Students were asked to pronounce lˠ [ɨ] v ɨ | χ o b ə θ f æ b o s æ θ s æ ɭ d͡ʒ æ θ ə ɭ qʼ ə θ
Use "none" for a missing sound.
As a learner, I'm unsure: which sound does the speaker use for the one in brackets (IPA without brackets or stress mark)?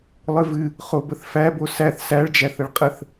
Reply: ɨ